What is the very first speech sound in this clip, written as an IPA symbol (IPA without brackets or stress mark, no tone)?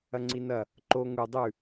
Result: ɐ